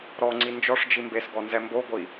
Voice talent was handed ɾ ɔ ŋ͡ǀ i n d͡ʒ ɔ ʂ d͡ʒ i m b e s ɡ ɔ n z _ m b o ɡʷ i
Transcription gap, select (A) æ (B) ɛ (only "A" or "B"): B